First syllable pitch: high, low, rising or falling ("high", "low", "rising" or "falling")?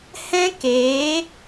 high